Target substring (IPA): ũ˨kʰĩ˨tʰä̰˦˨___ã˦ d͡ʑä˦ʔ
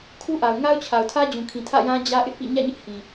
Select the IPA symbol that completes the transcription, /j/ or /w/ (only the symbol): j